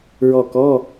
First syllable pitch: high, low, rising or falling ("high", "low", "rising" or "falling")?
falling